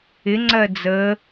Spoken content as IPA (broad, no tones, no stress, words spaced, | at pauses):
ɪŋ͡ǀɜ d͡zə